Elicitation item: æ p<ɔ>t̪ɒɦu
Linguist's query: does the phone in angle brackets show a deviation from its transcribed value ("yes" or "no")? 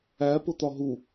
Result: yes